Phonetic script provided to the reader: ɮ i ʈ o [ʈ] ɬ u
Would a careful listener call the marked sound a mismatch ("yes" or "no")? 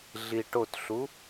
yes